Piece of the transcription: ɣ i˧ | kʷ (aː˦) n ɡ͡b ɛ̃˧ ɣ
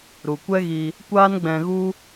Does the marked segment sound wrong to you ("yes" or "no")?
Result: no